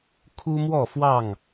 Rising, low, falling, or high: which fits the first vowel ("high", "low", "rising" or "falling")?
high